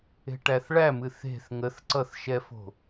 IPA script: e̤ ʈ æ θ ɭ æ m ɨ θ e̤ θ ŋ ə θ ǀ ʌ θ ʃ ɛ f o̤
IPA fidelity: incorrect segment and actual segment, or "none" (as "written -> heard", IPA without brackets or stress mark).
none